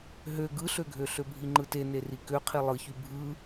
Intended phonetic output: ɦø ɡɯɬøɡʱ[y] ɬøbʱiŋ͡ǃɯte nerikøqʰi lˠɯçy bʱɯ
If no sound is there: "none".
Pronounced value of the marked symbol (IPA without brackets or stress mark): ø